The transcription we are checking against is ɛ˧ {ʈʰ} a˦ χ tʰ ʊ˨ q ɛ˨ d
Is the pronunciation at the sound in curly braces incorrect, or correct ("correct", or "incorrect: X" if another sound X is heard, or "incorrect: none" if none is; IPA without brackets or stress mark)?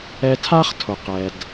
incorrect: tʰ